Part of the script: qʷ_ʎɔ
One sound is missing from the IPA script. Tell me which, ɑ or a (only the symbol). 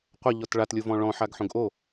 a